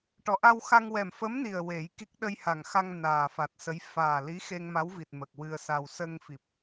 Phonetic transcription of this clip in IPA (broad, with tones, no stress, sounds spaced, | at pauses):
ʈ ɔ˨˩ ʔ a˧ w x a˧ ŋ w ɛ˨˩ m f ə˧˥ m n i˨˩ ə̯ w e˨˩˦ j k i˦˥ k̚ ɗ ə˧ j h a˨˩ ŋ x a˧ ŋ n aː˨˩ f a˨˩ t̚ s ə˧˥ j f aː˨˩ l i˧˥ x e˧ ŋ m a˧˥ w v i˨˩ t̚ m ə˨˩ k̚ w ɨ˧ ə̯ s a˧ w s ə˧ ŋ f i˨˩ p̚